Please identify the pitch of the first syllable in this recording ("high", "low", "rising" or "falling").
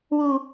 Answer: high